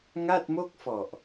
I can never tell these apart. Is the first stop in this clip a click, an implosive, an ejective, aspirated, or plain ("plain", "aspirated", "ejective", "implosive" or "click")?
plain